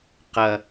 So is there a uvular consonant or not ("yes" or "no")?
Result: yes